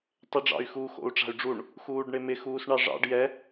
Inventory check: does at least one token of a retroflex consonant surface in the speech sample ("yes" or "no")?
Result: yes